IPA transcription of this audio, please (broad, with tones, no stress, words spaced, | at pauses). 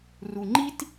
ru˩ŋ͡ǃi˥t